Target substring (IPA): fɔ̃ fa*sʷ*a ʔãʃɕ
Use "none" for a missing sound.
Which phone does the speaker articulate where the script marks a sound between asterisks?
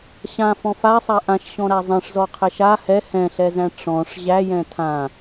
sˤ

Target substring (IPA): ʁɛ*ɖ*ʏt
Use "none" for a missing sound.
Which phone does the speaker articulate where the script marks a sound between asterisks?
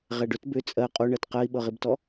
ɖ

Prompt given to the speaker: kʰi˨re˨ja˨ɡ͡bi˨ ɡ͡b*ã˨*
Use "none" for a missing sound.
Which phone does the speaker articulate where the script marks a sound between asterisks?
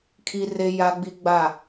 a˨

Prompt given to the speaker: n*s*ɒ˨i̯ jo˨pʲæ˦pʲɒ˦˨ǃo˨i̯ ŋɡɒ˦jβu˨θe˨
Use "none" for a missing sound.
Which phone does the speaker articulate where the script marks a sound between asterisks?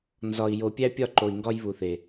z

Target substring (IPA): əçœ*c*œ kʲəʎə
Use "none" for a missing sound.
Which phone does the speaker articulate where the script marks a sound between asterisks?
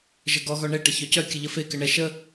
c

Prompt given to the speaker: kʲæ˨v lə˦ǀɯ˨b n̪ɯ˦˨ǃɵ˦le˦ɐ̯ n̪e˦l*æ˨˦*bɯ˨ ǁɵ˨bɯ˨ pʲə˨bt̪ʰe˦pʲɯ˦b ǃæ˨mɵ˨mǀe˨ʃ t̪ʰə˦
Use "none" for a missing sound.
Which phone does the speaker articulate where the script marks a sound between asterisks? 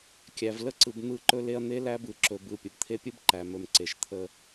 æ˦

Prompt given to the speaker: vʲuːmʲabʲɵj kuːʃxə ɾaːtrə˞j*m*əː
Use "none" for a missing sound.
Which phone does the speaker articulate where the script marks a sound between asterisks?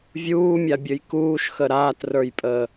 pʼ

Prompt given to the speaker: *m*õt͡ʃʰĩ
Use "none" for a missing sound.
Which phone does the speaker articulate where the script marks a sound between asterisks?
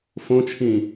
f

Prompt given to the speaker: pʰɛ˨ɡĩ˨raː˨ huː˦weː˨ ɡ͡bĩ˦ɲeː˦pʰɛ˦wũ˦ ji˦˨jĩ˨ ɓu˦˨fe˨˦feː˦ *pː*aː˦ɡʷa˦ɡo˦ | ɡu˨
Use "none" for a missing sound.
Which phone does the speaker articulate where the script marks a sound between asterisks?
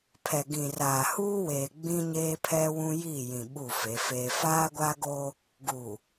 f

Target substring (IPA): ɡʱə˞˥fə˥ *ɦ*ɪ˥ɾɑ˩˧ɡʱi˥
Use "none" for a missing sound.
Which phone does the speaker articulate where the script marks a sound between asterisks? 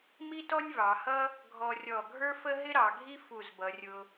ɦ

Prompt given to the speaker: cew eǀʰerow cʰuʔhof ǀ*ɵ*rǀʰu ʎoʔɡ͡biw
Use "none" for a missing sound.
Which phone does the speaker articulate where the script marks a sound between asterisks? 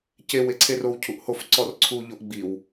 ɔ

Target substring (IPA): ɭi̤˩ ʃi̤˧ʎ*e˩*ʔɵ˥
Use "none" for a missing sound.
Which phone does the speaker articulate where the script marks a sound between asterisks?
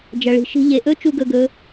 e˩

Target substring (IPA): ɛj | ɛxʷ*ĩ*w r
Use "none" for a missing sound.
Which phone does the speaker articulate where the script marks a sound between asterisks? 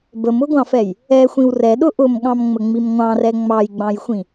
ĩ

